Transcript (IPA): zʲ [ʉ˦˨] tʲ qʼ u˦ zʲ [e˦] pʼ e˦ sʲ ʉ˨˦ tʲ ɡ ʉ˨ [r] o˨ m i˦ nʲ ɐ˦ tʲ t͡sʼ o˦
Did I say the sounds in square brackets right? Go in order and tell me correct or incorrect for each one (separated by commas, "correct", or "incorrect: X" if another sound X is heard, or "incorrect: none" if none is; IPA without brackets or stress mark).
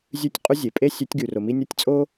correct, incorrect: e˨, correct